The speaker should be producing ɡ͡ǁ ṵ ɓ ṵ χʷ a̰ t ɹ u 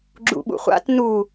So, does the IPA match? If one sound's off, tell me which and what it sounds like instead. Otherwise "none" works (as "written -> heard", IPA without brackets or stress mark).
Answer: ɹ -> n